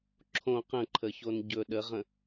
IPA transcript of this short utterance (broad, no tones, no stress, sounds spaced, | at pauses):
ǁʰ õ q ə̃ ǃʰ ə ç o n ɟ ɵ ɗ ə ʁ ə̃